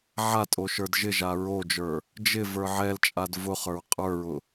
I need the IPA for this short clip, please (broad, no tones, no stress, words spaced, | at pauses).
ʕatʼo ʃə˞dʒɪʒa ɹod͡ʒə˞ | d͡ʒɪ və˞ʕɛlt͡ʃʼad vʊχə˞ɹ qʼə˞ɹʊ